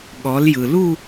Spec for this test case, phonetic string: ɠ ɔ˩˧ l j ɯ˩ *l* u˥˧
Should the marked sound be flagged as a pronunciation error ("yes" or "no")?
no